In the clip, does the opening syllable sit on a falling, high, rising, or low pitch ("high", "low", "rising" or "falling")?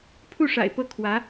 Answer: falling